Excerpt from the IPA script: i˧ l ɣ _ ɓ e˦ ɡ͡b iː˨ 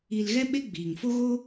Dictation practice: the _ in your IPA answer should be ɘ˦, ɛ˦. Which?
ɛ˦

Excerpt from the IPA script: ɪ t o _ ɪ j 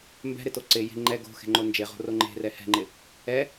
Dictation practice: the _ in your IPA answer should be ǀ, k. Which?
ǀ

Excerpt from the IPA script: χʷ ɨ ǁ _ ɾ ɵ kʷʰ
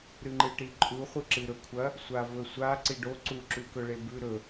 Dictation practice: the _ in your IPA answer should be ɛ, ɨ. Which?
ɨ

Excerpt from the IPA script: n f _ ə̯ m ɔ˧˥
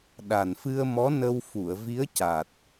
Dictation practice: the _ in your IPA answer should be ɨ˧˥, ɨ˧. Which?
ɨ˧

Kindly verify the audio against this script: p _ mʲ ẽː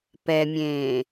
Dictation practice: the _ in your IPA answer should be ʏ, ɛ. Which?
ɛ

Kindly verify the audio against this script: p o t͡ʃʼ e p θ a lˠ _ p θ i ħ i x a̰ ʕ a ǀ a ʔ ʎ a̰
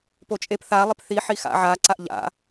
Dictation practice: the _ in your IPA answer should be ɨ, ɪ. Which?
ɪ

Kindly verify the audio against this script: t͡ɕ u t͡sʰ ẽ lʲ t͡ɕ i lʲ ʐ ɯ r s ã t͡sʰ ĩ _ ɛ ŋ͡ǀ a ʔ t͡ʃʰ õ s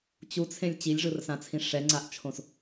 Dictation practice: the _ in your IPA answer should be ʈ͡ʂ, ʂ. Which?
ʂ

